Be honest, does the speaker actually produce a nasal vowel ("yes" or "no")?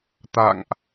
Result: no